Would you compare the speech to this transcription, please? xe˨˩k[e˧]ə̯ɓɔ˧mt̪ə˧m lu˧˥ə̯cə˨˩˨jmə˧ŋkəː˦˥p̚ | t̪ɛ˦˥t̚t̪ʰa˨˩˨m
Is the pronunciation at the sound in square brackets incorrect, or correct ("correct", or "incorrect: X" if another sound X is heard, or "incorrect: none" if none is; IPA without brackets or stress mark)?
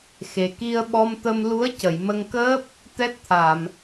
incorrect: i˧